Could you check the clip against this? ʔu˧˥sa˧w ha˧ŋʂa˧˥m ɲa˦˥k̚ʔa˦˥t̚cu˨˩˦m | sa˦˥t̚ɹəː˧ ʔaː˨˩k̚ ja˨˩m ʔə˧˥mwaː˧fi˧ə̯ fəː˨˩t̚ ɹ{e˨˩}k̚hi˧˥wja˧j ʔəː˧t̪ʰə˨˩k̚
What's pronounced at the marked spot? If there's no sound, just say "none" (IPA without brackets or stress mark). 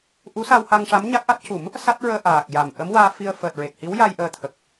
e˨˩